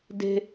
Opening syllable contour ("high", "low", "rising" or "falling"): high